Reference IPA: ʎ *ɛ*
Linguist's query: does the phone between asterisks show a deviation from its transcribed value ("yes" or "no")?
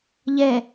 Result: no